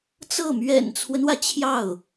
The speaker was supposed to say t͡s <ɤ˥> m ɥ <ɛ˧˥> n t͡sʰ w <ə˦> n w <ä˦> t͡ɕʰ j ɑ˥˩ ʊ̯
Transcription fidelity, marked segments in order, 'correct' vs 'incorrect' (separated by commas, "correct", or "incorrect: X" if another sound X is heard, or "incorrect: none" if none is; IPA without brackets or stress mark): incorrect: ɤ˥˩, incorrect: ɛ̰˨˩, correct, incorrect: ä˩